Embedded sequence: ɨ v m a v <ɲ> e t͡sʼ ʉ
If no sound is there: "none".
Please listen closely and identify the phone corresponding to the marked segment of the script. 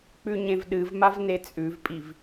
n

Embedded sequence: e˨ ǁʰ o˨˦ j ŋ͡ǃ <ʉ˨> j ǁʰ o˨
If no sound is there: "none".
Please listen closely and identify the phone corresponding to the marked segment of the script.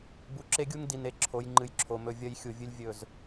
ɨ˨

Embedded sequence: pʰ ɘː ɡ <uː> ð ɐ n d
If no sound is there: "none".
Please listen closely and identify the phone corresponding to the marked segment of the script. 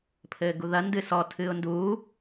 u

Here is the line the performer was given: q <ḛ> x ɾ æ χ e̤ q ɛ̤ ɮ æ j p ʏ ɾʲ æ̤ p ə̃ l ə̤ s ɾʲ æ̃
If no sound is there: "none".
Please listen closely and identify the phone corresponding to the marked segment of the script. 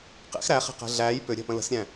ḛ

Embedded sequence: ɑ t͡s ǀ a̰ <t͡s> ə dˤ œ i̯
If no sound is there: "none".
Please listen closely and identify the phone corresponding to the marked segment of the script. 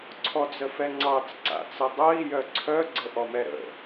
t͡s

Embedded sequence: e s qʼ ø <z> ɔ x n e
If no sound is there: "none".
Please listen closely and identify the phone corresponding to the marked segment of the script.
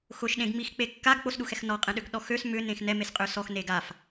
s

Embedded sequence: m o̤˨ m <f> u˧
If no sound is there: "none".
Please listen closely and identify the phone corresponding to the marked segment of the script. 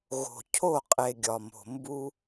b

